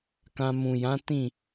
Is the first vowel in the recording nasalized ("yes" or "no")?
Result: yes